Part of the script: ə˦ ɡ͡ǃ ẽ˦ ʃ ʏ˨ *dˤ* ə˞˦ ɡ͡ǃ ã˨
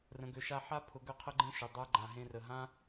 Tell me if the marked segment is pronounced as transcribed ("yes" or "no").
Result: yes